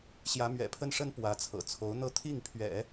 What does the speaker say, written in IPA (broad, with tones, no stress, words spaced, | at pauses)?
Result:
ɕjä˧˥mɥɛ̰˨˩pʰə˥nʂə˥n pwä˧˥t͡sʰɤ̰˨˩ t͡sʰo˧˥ʊ̯n̪ɤ˥˧ t̪ʰi˥˩ŋpʰɥɛ̰˨˩˦